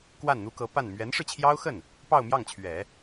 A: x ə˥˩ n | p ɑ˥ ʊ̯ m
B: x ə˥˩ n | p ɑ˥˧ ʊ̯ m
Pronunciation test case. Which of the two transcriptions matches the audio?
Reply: B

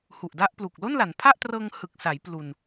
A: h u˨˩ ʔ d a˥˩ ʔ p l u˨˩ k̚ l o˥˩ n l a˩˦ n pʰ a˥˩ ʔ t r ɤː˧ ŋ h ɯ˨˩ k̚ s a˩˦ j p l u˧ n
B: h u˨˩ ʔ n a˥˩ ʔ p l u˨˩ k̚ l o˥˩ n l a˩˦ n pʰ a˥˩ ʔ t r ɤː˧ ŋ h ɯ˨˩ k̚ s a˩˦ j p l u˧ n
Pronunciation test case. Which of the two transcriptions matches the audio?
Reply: A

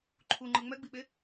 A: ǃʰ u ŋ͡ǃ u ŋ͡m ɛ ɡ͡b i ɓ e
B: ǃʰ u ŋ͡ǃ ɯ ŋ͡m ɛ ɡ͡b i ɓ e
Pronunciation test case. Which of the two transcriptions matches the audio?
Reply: B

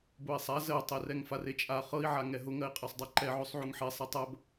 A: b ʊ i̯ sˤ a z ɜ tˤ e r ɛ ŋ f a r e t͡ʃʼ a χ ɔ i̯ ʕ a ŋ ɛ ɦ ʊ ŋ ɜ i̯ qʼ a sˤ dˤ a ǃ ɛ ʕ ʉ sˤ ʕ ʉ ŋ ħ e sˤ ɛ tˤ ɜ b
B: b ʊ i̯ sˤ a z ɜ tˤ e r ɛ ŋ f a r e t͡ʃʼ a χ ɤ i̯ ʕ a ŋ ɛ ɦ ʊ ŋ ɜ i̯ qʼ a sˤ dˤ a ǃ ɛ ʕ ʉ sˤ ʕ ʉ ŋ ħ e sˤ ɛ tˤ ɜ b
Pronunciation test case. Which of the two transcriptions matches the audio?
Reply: B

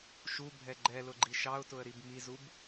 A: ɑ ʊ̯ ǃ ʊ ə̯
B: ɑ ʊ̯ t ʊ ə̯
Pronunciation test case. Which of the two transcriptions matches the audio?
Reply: B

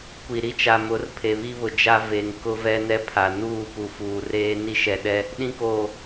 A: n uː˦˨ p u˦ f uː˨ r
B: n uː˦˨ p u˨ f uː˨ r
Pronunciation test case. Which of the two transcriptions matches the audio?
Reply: B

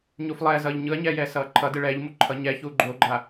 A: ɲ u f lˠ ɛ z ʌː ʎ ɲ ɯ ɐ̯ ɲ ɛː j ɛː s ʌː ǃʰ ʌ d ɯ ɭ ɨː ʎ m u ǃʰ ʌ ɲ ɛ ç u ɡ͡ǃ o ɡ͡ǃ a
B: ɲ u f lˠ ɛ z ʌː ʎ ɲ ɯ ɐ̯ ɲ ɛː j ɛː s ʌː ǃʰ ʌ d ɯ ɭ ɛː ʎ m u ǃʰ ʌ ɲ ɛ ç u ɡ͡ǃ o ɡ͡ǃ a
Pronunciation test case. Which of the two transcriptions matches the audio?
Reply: B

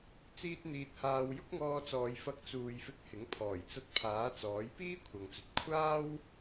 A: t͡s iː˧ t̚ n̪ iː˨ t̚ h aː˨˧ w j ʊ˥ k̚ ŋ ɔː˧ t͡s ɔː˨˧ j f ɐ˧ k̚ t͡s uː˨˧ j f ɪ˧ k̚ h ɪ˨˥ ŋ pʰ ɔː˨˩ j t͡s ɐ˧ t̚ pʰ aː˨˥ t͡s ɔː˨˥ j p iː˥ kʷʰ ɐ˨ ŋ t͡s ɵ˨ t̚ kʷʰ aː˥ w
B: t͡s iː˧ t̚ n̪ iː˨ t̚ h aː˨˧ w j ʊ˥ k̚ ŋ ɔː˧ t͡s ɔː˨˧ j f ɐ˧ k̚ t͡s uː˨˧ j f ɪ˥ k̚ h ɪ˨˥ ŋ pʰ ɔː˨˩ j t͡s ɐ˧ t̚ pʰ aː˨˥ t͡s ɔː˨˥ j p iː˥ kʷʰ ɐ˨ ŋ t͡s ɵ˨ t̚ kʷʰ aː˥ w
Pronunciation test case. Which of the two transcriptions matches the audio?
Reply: A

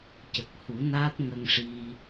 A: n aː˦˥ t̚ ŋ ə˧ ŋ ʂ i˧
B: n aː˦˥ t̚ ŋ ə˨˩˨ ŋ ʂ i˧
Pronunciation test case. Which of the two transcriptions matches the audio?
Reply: A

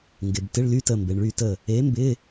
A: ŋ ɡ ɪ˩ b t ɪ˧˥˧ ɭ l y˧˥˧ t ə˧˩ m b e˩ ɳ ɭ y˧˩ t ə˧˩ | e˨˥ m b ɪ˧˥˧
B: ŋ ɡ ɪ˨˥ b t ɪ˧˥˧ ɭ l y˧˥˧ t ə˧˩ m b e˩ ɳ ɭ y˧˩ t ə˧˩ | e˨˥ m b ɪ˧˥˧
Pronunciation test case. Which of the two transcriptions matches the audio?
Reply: A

